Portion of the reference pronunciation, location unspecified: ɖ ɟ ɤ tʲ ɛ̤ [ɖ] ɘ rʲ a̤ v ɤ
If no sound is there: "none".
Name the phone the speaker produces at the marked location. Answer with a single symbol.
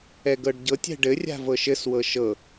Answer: ɖ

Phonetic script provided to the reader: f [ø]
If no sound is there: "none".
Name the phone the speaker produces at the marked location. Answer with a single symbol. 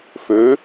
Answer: ø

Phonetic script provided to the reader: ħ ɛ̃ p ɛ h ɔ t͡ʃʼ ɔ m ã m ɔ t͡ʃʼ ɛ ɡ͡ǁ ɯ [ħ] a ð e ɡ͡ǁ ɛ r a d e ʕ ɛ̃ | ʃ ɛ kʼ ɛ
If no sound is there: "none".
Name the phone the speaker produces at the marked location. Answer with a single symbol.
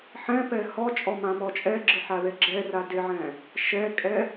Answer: ħ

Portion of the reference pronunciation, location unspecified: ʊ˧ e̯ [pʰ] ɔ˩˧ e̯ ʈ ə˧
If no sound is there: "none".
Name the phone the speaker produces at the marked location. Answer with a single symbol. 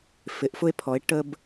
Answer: pʰ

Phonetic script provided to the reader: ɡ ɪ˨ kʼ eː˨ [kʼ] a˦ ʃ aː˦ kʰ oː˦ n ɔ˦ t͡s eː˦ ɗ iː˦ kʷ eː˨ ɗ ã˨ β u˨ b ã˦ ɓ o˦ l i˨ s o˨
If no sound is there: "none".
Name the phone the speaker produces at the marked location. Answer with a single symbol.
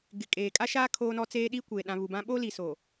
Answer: kʼ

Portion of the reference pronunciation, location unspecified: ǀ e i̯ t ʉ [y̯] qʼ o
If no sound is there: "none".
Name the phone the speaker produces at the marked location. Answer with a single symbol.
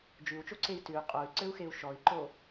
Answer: y̯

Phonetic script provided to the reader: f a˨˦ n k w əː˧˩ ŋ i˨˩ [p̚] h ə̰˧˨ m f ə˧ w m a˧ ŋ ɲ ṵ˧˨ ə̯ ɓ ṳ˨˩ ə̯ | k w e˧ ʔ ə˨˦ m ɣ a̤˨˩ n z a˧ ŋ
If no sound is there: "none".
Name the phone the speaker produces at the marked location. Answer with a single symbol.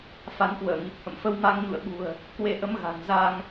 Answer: p̚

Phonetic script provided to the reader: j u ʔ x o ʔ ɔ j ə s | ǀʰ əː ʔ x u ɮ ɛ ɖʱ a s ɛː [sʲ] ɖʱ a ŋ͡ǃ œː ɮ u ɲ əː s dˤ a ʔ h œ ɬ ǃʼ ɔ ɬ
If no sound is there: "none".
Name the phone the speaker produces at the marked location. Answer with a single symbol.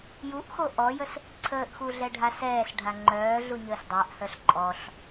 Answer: s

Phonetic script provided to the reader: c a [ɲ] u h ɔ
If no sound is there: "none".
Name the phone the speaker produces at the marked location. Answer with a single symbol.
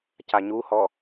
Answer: ɲ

